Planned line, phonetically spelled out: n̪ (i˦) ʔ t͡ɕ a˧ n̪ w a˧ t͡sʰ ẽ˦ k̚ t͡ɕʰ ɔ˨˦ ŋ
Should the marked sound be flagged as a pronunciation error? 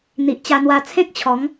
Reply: yes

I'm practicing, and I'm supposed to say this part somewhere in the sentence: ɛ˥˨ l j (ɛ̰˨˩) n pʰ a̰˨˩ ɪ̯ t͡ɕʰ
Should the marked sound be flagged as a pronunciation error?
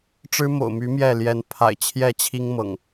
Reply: yes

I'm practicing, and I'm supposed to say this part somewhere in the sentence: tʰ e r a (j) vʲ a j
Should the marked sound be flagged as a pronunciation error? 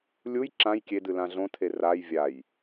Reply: no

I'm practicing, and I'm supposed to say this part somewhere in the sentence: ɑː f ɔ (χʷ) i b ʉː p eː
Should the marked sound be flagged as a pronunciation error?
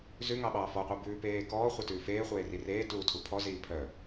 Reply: yes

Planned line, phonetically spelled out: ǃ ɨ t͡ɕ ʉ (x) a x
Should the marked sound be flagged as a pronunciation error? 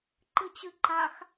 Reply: yes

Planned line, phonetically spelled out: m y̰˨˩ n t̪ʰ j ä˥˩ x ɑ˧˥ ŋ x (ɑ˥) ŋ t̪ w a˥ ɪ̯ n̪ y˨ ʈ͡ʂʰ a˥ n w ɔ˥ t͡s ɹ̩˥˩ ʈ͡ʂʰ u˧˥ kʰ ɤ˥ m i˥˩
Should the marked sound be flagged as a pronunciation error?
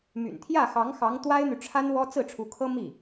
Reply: yes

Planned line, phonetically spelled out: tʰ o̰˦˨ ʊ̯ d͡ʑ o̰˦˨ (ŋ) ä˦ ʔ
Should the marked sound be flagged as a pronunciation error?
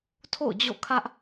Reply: yes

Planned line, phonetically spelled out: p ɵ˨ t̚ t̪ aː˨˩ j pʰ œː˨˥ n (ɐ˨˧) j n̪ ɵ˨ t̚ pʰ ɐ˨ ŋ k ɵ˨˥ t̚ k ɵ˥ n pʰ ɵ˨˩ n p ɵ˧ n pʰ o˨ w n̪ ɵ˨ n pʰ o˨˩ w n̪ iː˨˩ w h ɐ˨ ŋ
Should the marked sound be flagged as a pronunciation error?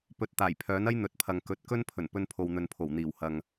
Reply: yes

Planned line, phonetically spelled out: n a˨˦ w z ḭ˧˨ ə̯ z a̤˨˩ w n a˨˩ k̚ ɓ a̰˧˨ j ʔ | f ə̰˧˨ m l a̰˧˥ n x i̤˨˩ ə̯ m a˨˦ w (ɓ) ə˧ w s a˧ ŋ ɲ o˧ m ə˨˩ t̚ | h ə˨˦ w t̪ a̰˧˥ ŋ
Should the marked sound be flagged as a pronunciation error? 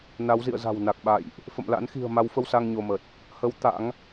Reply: yes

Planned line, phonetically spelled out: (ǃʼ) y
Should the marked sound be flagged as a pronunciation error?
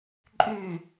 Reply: no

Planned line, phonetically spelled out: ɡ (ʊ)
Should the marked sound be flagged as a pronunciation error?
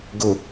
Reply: no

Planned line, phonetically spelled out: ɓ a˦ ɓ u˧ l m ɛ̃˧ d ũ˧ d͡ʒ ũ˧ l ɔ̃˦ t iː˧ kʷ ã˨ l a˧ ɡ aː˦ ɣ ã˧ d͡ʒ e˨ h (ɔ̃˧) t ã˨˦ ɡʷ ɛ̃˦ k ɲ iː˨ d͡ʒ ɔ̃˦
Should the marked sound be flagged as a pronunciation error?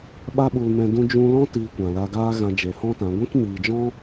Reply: yes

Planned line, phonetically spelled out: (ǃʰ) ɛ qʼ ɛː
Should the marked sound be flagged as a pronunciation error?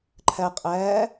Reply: no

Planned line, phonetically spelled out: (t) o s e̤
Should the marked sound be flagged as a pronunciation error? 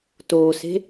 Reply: no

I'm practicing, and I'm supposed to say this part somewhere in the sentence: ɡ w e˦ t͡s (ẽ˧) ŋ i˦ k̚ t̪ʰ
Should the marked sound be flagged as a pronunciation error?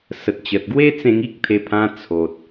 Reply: no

